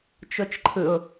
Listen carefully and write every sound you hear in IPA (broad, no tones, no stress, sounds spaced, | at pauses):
t͡ʃ o t͡ʃ ǃʰ ɯ ʊ̯